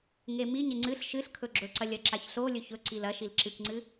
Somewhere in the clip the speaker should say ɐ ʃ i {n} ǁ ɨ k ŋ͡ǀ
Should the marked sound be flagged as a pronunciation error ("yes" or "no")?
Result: yes